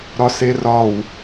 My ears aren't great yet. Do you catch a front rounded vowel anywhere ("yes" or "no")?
no